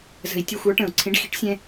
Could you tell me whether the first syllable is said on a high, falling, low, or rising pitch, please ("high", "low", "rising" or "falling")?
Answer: low